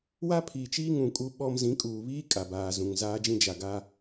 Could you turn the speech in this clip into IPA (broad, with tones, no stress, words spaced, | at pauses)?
wa˦pʰiː˨t͡ʃiː˦ŋũ˨ kʼu˦ɓɔ˦m zĩ˨˦kʼuː˨βiː˦ kʼa˨baː˨zũ˨ŋ zaː˦d͡ʒĩ˦ d͡ʒa˨ɡa˦